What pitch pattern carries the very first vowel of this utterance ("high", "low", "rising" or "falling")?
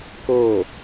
falling